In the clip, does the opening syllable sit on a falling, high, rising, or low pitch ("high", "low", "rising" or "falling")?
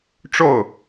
falling